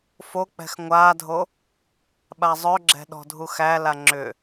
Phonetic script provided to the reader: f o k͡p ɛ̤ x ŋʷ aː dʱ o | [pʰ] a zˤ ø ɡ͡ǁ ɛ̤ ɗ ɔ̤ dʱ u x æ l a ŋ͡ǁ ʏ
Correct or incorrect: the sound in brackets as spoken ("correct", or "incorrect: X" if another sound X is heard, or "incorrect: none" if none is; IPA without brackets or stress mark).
incorrect: ɓ